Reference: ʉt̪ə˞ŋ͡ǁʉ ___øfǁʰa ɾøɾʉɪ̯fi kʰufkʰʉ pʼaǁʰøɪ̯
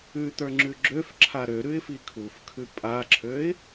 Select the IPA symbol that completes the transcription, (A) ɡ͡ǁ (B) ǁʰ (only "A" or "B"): A